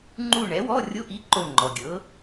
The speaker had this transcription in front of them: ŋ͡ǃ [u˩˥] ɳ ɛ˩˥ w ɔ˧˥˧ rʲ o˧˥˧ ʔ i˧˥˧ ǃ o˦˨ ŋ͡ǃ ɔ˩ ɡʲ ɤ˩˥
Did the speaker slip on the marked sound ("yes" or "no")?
yes